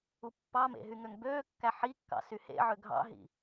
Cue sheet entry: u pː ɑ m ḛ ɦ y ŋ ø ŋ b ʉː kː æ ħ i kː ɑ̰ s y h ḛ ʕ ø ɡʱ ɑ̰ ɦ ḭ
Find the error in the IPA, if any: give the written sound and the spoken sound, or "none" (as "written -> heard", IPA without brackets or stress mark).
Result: ʉː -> øː